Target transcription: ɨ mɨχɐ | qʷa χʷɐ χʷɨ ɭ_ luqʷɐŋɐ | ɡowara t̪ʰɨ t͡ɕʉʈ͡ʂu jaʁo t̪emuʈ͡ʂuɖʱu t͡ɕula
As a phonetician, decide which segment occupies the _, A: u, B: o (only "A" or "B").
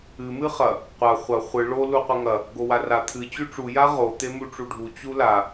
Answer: B